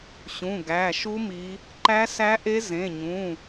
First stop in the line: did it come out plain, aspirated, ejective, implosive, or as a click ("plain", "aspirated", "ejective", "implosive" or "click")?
plain